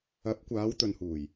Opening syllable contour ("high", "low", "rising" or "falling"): rising